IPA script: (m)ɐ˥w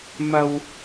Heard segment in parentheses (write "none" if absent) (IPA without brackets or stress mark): m